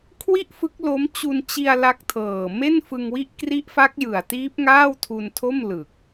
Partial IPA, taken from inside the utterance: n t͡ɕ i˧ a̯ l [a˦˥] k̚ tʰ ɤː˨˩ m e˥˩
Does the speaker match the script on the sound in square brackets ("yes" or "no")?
yes